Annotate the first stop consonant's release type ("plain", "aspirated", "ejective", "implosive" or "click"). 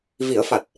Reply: plain